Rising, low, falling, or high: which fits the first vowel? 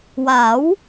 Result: rising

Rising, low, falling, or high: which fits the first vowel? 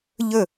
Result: falling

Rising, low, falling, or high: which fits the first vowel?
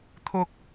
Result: high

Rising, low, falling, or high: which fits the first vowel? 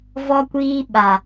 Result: high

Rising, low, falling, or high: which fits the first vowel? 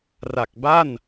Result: low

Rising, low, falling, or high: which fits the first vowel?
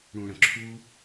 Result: low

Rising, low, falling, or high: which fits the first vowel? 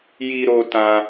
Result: high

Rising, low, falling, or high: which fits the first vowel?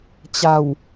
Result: low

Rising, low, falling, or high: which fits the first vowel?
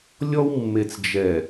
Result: high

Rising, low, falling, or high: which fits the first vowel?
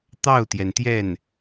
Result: falling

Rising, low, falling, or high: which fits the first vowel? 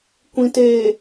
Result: low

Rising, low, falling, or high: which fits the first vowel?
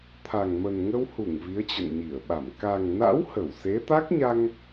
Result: low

